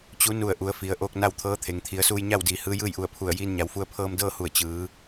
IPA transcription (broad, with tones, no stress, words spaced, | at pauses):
t͡ɕu˧˥ nu˧˩ə̯ ʔu˩˧ə̯ fi˩˧ə̯ ʔoː˧k̚na˥˨wt̪ʰɤː˧˥t̪ʰe˩ŋ t̪ʰi˩˧ə̯suː˧jɲa˥˨wdiː˩˧ hɯː˧˥jɯː˥˨jʔu˧˩ə̯pʰu˧˩ə̯ jiː˧nɲa˩˧wfu˧ə̯ pʰɤː˧mdɤː˥˨ hu˧˩ə̯ t͡ɕɯː˩˧